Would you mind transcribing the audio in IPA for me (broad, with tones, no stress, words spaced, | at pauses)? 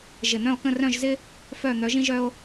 ʒɪ˧˩n̪œ̃˥˧o̯kə̃˥˧ rœ̃˥˧ʒzɪ˥ | fœ˥˧ n̪œ˨˦ʒĩ˥ ʒœ˥o̯